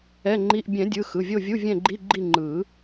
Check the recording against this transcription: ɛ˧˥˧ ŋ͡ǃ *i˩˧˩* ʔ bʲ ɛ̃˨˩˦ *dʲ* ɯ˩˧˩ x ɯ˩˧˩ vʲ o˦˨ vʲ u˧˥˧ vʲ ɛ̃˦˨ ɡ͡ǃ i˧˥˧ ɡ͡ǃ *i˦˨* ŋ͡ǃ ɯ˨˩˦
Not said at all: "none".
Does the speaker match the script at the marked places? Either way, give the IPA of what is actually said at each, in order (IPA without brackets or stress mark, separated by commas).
i˧˥˧, dʲ, i˦˨